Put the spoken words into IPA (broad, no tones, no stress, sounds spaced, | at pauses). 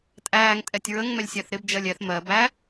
tʼ æː ŋ tʼ ɛ tʲ ɹ ə ŋ m ɛ lʲ sʲ æ θ ɾ ɪ b d͡ʒ ɜ lʲ ɛ θ m ɜ b æ